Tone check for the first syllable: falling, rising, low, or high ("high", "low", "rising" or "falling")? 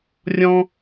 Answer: high